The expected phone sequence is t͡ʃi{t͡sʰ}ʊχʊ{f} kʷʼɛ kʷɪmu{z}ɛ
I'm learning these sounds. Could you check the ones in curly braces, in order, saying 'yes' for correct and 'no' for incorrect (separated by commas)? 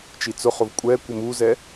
no, no, yes